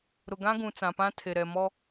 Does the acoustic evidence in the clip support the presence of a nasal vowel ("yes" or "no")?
yes